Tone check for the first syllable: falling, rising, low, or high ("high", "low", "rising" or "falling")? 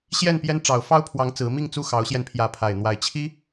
falling